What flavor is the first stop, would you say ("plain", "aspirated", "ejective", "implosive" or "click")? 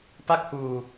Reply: plain